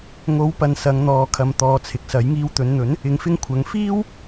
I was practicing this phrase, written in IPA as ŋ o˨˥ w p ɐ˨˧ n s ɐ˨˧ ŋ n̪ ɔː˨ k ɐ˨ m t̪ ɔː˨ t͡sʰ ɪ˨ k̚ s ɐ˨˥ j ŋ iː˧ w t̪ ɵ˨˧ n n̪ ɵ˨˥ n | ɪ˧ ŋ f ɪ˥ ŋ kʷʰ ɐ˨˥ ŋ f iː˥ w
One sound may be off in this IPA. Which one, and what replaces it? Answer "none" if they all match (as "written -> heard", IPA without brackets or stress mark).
k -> kʰ